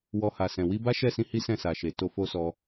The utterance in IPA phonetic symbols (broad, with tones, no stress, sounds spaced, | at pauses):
w ɔ˧ h a˨ s ɛ̃˨ w i˧ b a˦ ʃ ɛ˦˨ s ĩ˧ h i˦ s ɛ̃˦˨ s a˨ ʃ e˨ t o˧ f o˦ s ɔ˧